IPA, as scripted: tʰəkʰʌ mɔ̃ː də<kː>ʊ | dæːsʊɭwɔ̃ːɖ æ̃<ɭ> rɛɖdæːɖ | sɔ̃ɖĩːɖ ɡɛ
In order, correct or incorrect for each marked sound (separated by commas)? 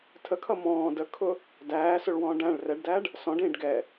incorrect, correct